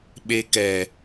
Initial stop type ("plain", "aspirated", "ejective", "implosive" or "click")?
implosive